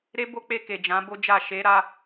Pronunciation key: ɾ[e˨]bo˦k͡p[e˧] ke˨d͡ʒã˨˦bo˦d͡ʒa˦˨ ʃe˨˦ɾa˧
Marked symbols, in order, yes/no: no, yes

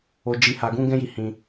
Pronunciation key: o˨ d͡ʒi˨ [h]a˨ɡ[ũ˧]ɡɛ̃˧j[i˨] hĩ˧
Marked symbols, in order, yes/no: yes, yes, yes

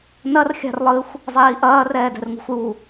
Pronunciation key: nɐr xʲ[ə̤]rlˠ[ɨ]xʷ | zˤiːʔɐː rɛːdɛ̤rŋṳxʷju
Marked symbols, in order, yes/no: no, yes

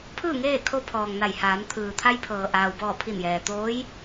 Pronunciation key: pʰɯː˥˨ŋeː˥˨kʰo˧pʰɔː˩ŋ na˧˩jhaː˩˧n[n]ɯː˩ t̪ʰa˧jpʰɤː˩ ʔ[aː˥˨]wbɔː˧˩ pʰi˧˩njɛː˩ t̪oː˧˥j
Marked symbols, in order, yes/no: no, no

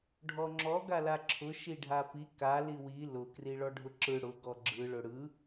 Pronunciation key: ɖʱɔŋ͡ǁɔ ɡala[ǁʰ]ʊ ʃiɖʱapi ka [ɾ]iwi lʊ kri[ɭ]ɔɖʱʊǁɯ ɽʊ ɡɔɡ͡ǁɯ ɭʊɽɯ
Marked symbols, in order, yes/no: yes, no, yes

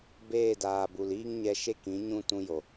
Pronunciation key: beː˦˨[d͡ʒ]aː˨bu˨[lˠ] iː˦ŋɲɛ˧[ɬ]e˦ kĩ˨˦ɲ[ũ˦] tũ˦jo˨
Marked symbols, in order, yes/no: no, no, no, yes

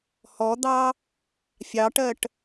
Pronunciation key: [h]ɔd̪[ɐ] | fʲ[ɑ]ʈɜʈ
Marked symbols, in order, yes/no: yes, no, yes

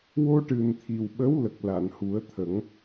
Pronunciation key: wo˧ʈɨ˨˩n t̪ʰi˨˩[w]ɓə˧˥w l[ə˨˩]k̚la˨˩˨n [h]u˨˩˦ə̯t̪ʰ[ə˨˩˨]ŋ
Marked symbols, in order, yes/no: yes, yes, yes, no

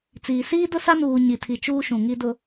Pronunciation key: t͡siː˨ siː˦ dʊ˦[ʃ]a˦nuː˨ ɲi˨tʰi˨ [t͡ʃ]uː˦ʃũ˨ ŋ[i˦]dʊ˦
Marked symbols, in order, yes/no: no, yes, yes

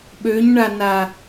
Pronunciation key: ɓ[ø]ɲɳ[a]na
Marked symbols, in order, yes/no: yes, yes

